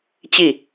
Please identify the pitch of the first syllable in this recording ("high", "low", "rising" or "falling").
falling